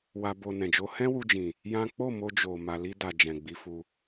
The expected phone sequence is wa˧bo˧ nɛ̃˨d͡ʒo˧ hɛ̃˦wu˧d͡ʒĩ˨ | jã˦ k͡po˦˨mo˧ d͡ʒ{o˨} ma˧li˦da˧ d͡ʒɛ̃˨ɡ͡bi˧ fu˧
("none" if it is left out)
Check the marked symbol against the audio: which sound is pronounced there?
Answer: o˨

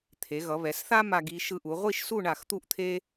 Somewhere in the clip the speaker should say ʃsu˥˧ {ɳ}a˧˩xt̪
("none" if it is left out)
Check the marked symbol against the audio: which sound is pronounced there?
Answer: ɳ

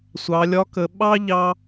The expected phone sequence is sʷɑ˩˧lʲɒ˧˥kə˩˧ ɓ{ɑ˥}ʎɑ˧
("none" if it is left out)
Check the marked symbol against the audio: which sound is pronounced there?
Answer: ɑ˥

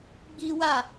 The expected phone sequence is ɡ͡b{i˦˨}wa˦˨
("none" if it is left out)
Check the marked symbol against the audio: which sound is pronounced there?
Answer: i˦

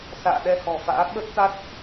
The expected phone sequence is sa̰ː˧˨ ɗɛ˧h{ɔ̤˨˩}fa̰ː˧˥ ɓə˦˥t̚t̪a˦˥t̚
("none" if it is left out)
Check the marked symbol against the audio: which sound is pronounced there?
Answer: ɔ̤˨˩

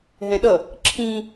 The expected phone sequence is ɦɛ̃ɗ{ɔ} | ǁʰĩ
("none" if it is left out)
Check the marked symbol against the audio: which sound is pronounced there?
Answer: ʌ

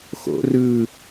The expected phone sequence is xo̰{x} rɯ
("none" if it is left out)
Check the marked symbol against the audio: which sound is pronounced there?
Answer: none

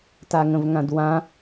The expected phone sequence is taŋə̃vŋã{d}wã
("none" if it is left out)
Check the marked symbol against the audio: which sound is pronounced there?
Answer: d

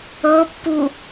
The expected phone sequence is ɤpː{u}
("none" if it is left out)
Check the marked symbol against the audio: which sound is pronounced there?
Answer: u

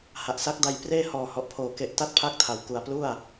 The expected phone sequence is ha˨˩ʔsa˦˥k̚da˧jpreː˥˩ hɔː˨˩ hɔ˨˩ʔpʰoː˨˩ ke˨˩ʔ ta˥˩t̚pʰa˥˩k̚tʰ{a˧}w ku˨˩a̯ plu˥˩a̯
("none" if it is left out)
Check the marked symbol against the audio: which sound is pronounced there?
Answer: a˨˩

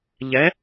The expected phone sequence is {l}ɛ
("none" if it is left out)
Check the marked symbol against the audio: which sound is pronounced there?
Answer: ʎ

